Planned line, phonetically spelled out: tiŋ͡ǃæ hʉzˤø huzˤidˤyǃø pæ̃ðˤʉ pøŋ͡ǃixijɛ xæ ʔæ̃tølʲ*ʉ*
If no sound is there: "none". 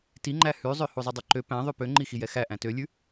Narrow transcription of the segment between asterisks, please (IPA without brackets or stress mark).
ʉ